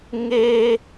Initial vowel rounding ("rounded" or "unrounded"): unrounded